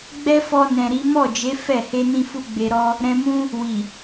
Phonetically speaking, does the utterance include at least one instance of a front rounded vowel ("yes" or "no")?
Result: no